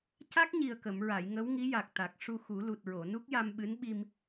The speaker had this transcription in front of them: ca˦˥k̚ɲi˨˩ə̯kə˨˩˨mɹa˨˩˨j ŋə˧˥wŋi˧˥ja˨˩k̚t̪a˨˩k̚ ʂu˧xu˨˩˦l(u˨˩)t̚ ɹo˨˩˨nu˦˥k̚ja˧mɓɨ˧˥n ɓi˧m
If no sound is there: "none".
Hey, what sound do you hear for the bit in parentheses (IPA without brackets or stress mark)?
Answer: u˨˩